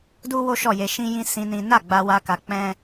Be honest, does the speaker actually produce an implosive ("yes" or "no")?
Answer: no